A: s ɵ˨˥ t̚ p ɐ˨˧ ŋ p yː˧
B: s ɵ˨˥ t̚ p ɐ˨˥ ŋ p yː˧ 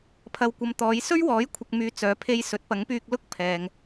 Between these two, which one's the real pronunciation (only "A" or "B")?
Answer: B